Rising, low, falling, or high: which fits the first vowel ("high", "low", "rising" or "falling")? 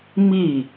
falling